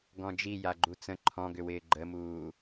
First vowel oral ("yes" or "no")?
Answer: no